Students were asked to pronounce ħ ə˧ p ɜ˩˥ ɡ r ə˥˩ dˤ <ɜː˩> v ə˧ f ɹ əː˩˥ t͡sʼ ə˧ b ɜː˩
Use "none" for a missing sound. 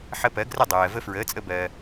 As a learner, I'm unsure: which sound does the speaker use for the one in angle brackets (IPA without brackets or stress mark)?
ɜː˩